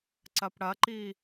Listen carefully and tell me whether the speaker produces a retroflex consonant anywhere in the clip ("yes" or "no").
yes